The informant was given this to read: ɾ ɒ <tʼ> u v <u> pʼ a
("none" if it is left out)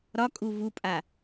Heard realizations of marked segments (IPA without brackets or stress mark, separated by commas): kʼ, u